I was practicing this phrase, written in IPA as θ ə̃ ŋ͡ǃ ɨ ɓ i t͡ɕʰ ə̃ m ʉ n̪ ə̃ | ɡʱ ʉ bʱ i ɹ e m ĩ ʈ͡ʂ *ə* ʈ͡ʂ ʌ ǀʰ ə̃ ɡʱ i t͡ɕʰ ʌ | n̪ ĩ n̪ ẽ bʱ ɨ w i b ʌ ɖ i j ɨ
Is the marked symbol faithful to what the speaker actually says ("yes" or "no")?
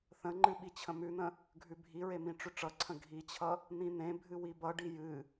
no